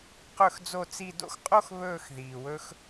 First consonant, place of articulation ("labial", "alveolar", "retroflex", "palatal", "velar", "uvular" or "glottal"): uvular